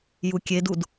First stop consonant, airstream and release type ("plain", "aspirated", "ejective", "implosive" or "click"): plain